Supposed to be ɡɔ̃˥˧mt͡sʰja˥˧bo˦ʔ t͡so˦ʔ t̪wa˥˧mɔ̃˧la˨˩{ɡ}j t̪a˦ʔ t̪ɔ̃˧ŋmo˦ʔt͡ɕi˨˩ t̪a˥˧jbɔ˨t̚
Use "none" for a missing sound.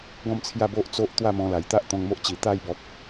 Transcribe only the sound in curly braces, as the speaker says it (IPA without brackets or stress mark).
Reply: none